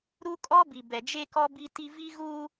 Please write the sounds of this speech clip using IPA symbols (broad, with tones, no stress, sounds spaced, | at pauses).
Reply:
ɾ u˦ kʼ ɔ˦ b i˨ b ɛ˨ d͡ʒ e˦ k ɔ˦ b i˦ t i˦ v i˦ ɣ u˦